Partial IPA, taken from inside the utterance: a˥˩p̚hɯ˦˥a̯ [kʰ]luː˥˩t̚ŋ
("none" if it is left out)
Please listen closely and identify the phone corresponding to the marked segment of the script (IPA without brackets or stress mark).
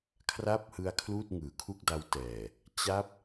kʰ